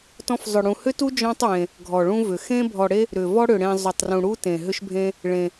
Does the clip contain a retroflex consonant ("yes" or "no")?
yes